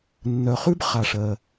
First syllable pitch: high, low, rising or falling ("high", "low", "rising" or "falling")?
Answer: low